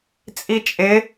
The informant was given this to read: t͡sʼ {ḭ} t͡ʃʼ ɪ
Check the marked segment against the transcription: incorrect: i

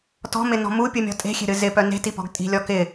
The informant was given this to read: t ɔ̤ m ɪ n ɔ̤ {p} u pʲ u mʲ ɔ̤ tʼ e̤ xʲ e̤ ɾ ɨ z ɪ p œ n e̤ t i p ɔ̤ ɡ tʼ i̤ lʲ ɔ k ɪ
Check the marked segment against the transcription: incorrect: m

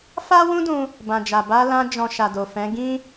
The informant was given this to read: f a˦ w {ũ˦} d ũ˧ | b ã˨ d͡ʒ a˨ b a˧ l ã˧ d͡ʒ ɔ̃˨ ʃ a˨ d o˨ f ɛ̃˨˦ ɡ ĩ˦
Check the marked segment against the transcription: correct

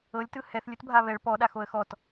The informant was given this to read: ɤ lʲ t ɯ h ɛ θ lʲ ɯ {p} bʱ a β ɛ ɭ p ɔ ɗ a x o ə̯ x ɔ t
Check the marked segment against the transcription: incorrect: t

